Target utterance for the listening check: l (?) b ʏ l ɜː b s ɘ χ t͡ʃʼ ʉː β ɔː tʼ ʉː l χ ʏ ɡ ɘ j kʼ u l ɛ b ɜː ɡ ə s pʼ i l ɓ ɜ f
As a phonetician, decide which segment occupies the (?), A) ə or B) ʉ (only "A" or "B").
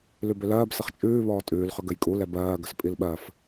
B